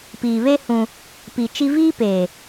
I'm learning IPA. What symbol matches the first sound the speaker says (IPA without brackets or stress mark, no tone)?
p